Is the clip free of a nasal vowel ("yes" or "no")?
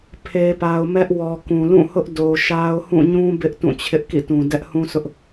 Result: no